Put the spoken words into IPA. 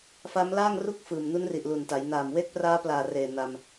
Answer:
f a˦˥ m l aː˥˩ ŋ r u˥˩ k̚ f ɯː˨˩ m n u˦˥ n r i˨˩ ʔ l u˨˩ n t a˩˦ j n aː˨˩ m w e˦˥ k̚ p r aː˦˥ p l aː˨˩ r eː˨˩ n a˧ m

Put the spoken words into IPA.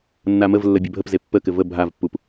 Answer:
nː a m ə v lː ə bʲ œ bʱ ə p z e pː ə k ɘ v ə bʱ a v pː u p

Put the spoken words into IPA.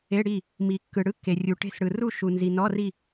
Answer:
e˧˥˧ ɽ i˥˨ | m i˨ kː ɯ˨ ɽ ɯ˧˥˧ kː e˨ rʲ u˨ ʈ e̤˥˨ s ɽ ɯ˨ r u˥˨ ʃ u˨ n z i˨ n ɔ˧˥˧ r i˥˨

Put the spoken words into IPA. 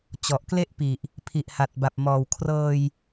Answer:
t͡ɕ ɔ˨˩ ʔ k l e˥˩ ʔ p i˨˩ ʔ | pʰ i˨˩ ʔ h a˨˩ t̚ b a˨˩ p̚ m ɔː˨˩ w kʰ r ɤː˧ j

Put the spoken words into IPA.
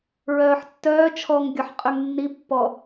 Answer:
ɹ œː ħ tː œː t͡ʃʰ ɔ ŋ ɡʲ ɔ ħ qʼ y ŋ nː i pː ɔ

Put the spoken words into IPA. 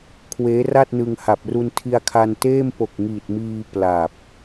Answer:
kʰ w eː˦˥ r a˥˩ t̚ n ɯ˧ ŋ h a˨˩ p̚ r u˧ n tʰ i˧ a̯ kʰ a˧ n t eː˥˩ m p o˨˩ k̚ ŋ iː˨˩ t̚ m iː˧ p l a˨˩ p̚

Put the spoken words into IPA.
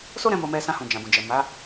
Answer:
s o˦ ɾ ɛ̃˧ m o˧ m ɛ˧ s ã˧ h ũ˨ d͡ʒ ã˨ b ũ˨ d͡ʒ ɛ˨ m a˨˦

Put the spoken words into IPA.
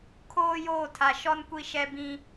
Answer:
kʰ oː˦ j oː˦˨ tʰ a˨ ʃ ɔ˦ n kʷ i˦ ʃ ɛ˦ b ĩ˦

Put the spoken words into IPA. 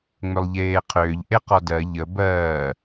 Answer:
ŋ͡m ʏ lˠ ʎ eː qʰ ʏː ʎ ʔ e q ɔ d ɜ ʎ ə b ɜː

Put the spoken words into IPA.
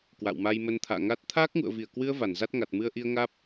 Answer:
k w a̰˧˨ w m a˧ j m ə˧ n t̪ʰ a̰ː˧˨ ŋ aː˦˥ t̚ t̪ʰ aː˦˥ k̚ ŋ ṵ˧˨ ə̯ v i˧˩ ə̯ k w ɨ˧ ə̯ v a˧˩ n z a˦˥ t̚ ŋ a˨˩ t̚ m ɨ˧ ə̯ ʔ i˧ ə̯ ŋ aː˦˥ p̚

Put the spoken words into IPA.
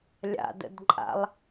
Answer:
lʲ a̰ d ə̰ d ǃʼ a̰ lˠ

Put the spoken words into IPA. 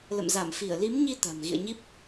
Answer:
l ə̰˧˨ m z a˧˩ m f i˧˩ ə̯ l i˨˦ m ɲ i˧ t̪ a̤˨˩ m ɣ ḭ˧˨ ə̯ ɲ i˦˥ p̚

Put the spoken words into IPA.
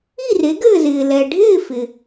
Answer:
i˥˨ r e˨˥ ɡ ɘː˥˨ z ɪː˨ l ɛ˨ ɖʱ ɪː˥˨ f ɪ˨

